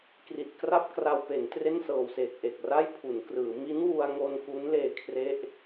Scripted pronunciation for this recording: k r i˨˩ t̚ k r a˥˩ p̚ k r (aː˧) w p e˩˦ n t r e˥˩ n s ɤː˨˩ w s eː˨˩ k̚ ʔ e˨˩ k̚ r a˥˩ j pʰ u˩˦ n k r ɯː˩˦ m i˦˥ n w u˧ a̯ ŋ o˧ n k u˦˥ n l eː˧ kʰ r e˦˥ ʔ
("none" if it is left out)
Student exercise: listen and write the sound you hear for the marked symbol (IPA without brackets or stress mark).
a˧